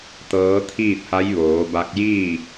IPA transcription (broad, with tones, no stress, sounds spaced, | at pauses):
t̪ ɤː˧˥ t̪ʰ iː˥˨ t̚ h a˧˥ j ʋ oː˩˧ b a˧ k̚ j iː˥˨